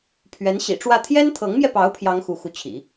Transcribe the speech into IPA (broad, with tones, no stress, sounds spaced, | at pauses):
pʰ ɥ ɛ˧˥ n ɕ ḭ˨˩ ʈ͡ʂ w ä˥˩ t̪ʰ j ɛ˥ n t̪ʰ ɤ˧˥ ŋ m j ɛ˧ p ɑ˧˥ ʊ̯ pʰ j ɑ˥ ŋ x u˧˥ x u˧˥ t͡ɕʰ ḭ˨˩˦